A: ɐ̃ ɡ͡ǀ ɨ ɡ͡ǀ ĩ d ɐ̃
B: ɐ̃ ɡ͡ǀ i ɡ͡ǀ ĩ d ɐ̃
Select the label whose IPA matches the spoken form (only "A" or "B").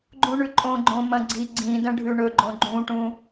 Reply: B